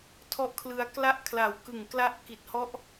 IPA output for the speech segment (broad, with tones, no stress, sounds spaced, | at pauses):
tʰ ɔ˦˥ ʔ kʰ l ɯ˧ a̯ k l a˥˩ ʔ kʰ l a˨˩ w k ɯ˨˩ ŋ k l a˦˥ ʔ k i˨˩ t̚ h ɔ˦˥ ʔ